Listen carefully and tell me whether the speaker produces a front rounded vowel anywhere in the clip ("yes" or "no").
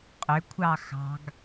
yes